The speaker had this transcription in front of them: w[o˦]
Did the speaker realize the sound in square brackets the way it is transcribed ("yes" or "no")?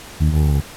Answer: no